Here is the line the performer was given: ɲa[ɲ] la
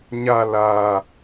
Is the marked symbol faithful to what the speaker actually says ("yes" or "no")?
no